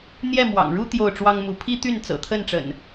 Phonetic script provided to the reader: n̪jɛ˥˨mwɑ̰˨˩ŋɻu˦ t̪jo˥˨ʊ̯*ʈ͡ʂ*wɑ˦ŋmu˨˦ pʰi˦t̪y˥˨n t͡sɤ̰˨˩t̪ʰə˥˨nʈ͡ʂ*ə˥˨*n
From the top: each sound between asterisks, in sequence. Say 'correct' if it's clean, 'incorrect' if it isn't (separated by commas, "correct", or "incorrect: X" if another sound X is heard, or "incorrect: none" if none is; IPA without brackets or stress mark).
correct, incorrect: ə̰˨˩